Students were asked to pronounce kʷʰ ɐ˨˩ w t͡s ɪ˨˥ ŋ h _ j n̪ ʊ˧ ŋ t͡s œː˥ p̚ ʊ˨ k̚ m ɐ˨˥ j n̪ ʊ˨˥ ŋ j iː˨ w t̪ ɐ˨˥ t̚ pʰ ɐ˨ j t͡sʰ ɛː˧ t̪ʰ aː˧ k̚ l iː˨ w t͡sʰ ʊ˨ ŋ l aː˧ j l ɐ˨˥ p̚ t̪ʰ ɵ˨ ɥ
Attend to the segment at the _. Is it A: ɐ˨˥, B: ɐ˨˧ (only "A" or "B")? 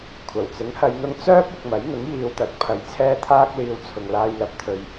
B